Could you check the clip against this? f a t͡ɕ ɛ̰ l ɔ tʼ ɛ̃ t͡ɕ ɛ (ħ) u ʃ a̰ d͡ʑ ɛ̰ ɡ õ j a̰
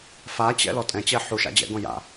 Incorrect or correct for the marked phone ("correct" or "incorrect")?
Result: correct